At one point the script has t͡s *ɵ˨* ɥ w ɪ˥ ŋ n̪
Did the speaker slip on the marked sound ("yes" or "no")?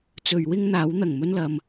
no